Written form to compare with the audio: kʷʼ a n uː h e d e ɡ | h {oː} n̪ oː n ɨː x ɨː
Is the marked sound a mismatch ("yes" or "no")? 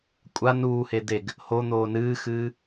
yes